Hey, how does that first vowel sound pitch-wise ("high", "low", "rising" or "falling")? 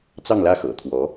falling